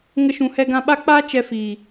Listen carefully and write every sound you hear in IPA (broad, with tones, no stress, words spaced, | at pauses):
ŋə˧ʃũ˨hɛ˧ ɡã˧ɓa˦k͡paː˦ t͡ʃɛ˧fiː˨